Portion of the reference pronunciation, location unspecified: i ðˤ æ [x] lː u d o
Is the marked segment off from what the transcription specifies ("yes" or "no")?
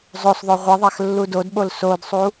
no